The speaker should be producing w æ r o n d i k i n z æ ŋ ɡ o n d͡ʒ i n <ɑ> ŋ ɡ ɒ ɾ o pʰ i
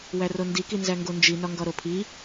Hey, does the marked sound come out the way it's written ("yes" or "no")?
no